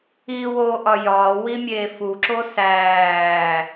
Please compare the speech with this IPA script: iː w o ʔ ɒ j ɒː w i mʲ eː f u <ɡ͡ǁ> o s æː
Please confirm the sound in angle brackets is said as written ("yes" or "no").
no